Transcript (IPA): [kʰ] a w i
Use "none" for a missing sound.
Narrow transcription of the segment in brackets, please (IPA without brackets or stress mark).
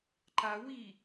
ǃ